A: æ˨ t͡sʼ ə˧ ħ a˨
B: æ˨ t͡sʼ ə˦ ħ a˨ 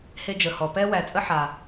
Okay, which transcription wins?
B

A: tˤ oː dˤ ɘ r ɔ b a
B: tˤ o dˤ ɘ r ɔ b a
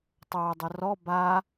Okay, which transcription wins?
A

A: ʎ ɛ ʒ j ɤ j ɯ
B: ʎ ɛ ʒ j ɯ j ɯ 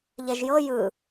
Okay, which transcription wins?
A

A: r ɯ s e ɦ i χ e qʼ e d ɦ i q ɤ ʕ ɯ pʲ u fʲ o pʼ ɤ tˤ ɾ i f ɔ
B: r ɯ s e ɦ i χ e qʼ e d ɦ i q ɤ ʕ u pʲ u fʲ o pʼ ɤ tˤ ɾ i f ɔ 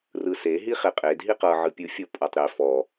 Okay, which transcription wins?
A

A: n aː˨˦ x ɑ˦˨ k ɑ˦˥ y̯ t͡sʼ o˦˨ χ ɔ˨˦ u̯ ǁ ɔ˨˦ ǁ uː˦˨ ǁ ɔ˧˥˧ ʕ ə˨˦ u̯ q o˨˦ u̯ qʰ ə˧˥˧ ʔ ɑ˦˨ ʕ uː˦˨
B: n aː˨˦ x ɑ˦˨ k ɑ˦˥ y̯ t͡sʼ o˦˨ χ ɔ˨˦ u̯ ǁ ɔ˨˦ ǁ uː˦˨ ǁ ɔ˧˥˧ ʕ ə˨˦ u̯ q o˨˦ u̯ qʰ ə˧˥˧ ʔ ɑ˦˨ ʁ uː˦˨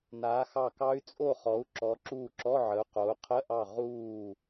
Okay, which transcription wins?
B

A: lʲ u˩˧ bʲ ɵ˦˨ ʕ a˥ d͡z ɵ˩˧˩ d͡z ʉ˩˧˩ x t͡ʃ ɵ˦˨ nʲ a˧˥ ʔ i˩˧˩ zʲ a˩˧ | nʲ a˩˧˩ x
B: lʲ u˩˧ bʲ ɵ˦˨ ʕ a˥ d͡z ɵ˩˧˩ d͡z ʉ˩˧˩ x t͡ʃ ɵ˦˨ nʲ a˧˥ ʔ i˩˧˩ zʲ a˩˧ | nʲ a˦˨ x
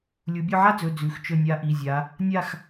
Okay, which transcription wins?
B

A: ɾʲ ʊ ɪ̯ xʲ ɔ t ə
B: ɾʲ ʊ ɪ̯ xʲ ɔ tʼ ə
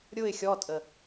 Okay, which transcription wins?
B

